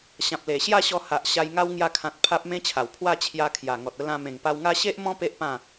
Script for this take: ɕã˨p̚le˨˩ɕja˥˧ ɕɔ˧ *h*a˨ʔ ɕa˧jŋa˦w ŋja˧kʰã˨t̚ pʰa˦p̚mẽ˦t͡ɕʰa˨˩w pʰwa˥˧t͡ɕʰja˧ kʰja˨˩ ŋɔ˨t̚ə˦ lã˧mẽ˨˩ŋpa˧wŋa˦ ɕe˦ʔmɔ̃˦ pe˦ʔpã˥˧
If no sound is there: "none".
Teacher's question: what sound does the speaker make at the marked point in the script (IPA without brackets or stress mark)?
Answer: h